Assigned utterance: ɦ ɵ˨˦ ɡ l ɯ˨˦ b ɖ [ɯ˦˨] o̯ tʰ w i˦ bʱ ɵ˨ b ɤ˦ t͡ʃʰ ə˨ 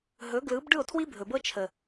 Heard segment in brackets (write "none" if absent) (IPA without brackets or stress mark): ɯ˦˨